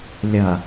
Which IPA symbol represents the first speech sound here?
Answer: lʲ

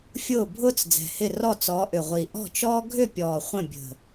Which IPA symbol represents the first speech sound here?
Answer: fʲ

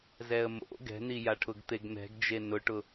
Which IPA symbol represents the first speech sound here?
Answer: z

